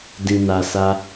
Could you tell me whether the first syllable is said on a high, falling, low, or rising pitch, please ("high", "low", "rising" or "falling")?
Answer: low